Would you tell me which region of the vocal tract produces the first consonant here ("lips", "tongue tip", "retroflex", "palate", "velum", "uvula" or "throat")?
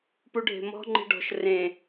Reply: lips